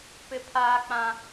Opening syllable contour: high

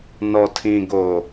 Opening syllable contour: low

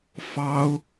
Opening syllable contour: high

